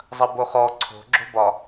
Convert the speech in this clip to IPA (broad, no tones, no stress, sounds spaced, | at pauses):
zˤ ɐ b o χ ɔ ǀʰ o̤ ɡ͡ǁ o̤ b ɒ